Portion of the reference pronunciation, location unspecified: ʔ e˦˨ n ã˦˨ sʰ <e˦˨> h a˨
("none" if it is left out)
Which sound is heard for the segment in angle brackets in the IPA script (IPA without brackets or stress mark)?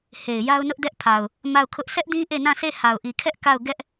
e˦˨